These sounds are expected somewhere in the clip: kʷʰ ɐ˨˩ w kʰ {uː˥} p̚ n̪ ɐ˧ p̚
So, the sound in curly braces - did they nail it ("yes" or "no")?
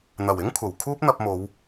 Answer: yes